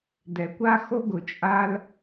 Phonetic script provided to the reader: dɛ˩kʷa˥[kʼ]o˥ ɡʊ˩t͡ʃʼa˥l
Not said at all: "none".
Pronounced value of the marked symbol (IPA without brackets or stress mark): x